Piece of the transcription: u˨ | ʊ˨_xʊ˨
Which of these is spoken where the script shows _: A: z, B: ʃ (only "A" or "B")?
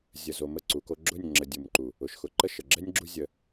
B